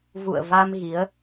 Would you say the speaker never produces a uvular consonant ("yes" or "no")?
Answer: yes